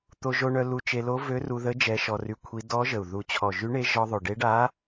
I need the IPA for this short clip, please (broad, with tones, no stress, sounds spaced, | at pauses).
t̪ o˧ ʒ o˧ ɳ œ˧ l u˧ t͡ʃ e˧ l o˧˥ v ø˧˥ r u˧ ð ə˧˥ d͡ʒ ɛ˧˥ ʃ ɔ˧ r y˧ kʷʰ i˧˥ d ɔ˧˥ ʒ ə˨˩ u̯ ð u˨˩ t͡ɕʰ ɔ˨˩ ʒ y˧˥ ɳ e˧˥ ʒ ɔ˧ ðˤ o˨˩ ɖ e˧˥ ɖ a˧˥